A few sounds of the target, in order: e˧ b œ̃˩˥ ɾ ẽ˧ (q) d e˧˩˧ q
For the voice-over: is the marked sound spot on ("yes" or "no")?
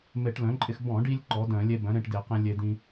no